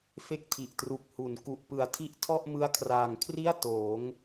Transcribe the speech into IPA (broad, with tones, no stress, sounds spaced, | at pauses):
f e˦˥ k̚ tʰ i˨˩ ʔ t r u˨˩ k̚ h u˩˦ n k u˨˩ ʔ p ɯ˨˩ a̯ tʰ i˦˥ ʔ tʰ ɔ˥˩ ʔ m ɯ˦˥ a̯ kʰ r aː˨˩ ŋ kʰ r i˥˩ a̯ t oː˩˦ ŋ